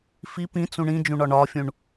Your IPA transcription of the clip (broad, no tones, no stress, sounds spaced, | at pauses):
f i p ĩ t͡s ũ ɳ ĩ d͡ʒ ũ ɳ ɒ ɳ ɒ fʲ ũ ɳ